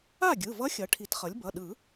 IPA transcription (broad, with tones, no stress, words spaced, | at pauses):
a˥˩ɡʲɯ˩˧˩vʌ˧˥ xʲʌ˩˥ʈʰi˨˩˦tχʌ˩˥lʲ bʌ˩˧˩ɗɯ˨˩˦